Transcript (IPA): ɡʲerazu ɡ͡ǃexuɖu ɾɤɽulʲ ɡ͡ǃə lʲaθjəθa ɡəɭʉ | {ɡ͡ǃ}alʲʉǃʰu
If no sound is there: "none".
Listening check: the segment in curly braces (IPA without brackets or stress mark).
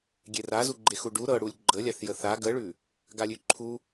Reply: ɡ